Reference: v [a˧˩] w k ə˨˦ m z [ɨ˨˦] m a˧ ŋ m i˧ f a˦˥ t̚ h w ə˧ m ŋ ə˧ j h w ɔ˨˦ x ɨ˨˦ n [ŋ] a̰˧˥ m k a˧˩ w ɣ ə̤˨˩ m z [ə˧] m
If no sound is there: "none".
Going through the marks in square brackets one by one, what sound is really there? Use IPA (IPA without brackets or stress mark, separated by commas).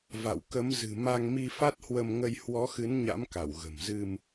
a̰˧˨, ɨ̤˨˩, ɲ, ɨ˧